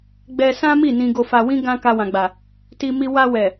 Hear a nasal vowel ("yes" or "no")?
yes